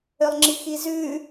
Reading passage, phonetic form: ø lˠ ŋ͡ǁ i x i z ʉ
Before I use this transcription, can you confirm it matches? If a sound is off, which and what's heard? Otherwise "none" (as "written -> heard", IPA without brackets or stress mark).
none